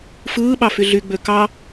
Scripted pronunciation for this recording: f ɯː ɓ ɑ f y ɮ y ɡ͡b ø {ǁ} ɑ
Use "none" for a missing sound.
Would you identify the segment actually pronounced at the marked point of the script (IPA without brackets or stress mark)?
k